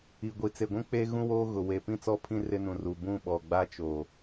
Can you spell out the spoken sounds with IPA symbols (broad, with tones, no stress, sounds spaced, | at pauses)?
i˨ ɡʷ i˨ t͡s e˨ ɡʷ ũ˦ k͡p eː˦ ɣ ũ˦ w oː˦ ɣ ʊ˨ w e˨ p ĩ˦˨ t͡s ɔ˦˨ pʰ ĩ˦ r ɪ˦ n ũ˨ r u˨ b ũ˦˨ ɓ ɔ˨ ɡ͡b a˦ t͡ʃ oː˨